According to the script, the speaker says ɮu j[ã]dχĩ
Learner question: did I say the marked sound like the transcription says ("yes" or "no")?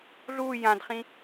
yes